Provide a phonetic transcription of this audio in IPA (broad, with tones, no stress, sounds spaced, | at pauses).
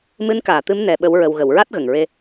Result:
m ɨ˧˥ n k aː˨˩˨ t̪ ɨ˧˥ m n ɛ˧ ɓ ə˧˥ w ɹ ə˧ w ɣ ə˨˩˨ w ɹ a˦˥ t̚ ɣ ə˨˩ ŋ ɹ e˧